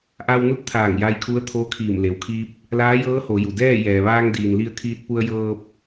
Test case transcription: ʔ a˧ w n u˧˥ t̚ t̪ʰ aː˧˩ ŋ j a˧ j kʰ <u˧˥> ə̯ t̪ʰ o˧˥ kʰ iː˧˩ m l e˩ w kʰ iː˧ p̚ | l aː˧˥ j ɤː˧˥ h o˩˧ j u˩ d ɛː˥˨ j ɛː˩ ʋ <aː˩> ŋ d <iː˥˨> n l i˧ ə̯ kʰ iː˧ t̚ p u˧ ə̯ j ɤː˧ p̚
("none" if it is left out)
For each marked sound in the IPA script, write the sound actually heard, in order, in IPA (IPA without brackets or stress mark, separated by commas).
u˧˥, aː˧, iː˩